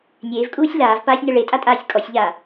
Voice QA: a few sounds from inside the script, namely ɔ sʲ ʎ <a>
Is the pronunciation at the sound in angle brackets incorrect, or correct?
incorrect